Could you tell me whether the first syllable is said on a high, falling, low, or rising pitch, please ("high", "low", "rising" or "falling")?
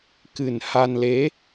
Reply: low